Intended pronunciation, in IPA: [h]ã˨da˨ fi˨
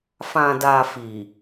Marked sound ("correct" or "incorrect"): incorrect